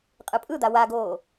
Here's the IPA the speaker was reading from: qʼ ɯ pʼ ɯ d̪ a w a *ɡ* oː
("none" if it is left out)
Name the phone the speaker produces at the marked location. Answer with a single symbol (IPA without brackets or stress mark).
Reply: ɡ